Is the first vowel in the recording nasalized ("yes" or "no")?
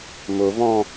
no